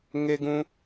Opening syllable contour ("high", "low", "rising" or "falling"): high